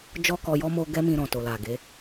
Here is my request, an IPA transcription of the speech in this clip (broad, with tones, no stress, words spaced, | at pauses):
d͡ʒɔ˦kɔ˧jɔ˦ mo˧ ɡɛ˦mĩ˧ɾɔ̃˨ to˨la˨ɡe˨˦